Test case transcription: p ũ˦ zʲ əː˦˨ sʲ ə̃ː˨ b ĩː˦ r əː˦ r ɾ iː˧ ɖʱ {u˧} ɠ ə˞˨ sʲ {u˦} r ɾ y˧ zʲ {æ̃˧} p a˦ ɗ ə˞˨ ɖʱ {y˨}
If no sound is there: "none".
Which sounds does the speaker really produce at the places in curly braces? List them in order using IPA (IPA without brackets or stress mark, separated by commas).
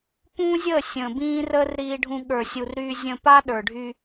ũ˧, u˨, ə̃˧, y˧